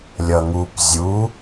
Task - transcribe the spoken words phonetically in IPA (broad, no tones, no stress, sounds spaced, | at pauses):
lʲ ʌ ŋ u p zʲ u